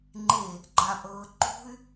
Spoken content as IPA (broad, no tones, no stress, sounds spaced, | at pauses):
ŋ͡ǃ e | ɡ͡ǃ a pʼ ɤː ǃ ṳ y̯